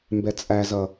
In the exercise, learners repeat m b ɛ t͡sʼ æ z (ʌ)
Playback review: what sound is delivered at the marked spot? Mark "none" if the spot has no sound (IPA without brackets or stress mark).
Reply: ʌ